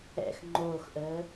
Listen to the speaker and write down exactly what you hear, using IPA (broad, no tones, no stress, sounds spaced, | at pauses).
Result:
ɛ̰ x ŋ͡ǃ oː x ʔ əː